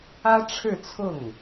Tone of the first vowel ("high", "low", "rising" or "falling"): high